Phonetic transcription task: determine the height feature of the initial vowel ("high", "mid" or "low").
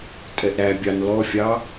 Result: mid